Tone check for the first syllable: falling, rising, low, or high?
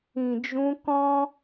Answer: low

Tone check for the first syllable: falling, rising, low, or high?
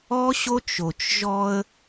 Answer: high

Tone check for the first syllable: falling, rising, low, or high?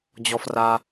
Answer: low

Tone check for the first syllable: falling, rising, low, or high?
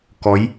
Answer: rising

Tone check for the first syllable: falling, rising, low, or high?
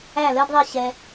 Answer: falling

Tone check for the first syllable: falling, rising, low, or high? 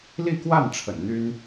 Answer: falling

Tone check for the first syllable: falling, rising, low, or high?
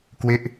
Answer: falling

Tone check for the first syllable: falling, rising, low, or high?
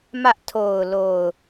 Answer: high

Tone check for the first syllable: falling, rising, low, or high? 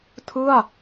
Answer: falling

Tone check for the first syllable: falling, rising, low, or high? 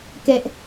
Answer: high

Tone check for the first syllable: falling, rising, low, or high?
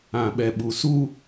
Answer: low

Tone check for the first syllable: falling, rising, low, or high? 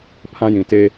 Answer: high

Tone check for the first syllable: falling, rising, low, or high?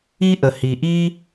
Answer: high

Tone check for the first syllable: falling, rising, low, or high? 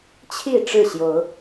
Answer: falling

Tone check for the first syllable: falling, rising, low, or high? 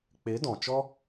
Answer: rising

